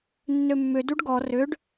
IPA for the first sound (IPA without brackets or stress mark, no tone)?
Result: nː